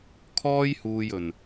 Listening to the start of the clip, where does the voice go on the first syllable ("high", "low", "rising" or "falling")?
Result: high